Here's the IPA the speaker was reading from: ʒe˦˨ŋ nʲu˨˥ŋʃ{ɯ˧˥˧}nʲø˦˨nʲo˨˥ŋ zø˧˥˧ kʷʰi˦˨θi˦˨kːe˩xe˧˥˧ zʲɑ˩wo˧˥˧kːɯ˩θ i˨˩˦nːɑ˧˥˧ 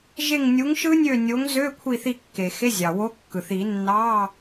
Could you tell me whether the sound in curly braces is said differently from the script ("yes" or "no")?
yes